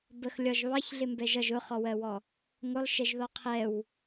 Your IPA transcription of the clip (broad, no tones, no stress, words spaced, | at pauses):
bəxlʲɒʒ βɑçɮɪ mbɛʒʌʒ ʊχɔwɜwɔ | ŋʊlˠʃɛʒðɔ qʰɛw